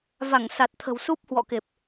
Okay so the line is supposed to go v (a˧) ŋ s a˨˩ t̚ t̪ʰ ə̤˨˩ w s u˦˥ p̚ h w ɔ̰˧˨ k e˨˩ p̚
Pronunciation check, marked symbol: incorrect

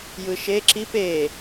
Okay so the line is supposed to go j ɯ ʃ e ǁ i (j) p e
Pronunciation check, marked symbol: incorrect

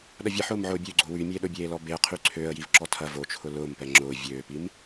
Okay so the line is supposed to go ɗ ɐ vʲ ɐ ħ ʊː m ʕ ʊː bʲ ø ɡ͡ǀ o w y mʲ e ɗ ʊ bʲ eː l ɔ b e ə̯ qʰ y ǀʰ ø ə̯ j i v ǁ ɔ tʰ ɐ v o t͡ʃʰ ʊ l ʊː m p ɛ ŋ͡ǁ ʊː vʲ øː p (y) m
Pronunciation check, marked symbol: incorrect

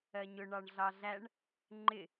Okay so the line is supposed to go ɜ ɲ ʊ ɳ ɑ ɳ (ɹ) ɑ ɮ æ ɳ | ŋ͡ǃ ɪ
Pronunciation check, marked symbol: incorrect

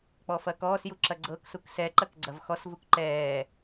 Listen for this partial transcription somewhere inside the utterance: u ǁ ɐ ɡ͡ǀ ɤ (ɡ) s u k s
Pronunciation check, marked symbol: incorrect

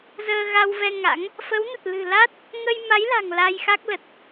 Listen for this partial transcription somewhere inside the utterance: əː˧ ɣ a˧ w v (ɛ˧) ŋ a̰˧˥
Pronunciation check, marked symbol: correct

